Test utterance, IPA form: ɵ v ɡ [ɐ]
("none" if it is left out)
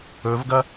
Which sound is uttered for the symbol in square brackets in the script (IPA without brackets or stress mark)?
ɐ